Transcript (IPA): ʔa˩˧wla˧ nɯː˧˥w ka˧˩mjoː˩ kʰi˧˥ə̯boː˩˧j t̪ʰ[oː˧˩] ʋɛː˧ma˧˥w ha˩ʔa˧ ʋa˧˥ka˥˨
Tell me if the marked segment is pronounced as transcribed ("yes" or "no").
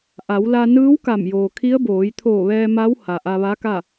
yes